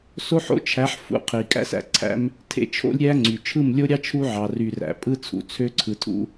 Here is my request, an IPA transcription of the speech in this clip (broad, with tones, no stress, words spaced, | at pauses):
so˦ħo̰˦t͡ʃʰæ˨˦ħ fṵ˦˨qʰi˨ kʼæ̰˦s æ̰˨ǀʰæ̰˦m | tʰḛ˦t͡ʃʰo̰˦lʲɾʲæ˦ ŋ͡ǀy˨ t͡ʃʰɯ˦˨mlʲo˦ɾʲɑ˦ t͡ʃʰu˦ʕɑ˨ ry˨ræ̰˨ pʼɯ˦t͡sʰṵ˨t͡sʰø˦ ǀʰɯ˨tʰṵ˦